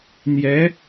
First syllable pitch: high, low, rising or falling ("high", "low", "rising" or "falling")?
rising